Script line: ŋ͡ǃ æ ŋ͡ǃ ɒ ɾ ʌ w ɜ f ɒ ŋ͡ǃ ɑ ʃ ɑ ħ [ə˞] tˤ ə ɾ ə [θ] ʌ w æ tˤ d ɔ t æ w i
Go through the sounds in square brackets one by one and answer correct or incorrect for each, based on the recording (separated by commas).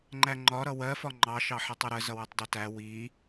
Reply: incorrect, incorrect